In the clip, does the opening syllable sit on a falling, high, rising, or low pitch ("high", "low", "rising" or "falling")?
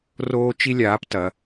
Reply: high